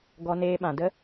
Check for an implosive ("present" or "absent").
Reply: present